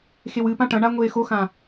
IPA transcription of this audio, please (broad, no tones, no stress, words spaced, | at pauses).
xewɨpã ʈɐ̃ɳa ŋʷeːxoxã